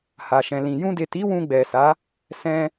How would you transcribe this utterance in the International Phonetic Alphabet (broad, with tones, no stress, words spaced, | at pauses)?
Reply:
ha˨ʃɛ̃˨lĩ˨ jũ˧de˨ti˨˦ wũ˧ɡ͡bɛ˨sa˨˦ | sɛ̃˧